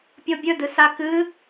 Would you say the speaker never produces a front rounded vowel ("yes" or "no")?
yes